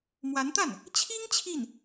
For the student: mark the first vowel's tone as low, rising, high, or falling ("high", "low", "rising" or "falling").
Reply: rising